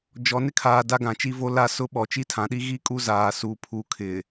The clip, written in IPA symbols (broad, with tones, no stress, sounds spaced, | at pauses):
d͡ʒ ɔ˨ n ɪ˦ kʰ aː˨ d a˦ ɡ ã˨ t͡ʃ i˦ v o˦ l a˦ s ʊ˦ ɓ ɔ˨ t͡ʃ i˦ tʰ ã˨ ɗ i˦ ɣ i˦ kʼ u˦ z aː˨ s u˨ pʰ u˨ kʰ ɪ˨